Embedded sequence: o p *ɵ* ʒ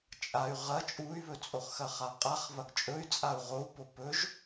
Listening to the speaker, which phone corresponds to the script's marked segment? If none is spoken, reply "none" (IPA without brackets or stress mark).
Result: ɵ